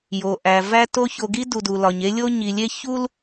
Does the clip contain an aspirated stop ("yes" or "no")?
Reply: no